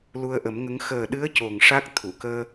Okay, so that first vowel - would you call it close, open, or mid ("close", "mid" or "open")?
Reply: close